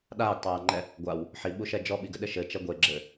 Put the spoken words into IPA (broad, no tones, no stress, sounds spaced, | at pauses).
ɗ aː ɡ tˤ aː ŋ͡ǃ ɛ | ɡʷ a w | ħ i ɓ u ʃ ɛ d͡ʒ ɔ ɓ i ɡ ɘ ɗ ɘ ʃ ɘ t͡ʃ ɛ ɡʷ e ɡ͡ǁ ɘː